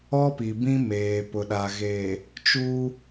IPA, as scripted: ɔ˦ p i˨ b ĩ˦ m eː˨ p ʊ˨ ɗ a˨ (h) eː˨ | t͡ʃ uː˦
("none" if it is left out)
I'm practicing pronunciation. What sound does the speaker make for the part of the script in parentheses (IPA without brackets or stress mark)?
ɣ